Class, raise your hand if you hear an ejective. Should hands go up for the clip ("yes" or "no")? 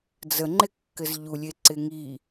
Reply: no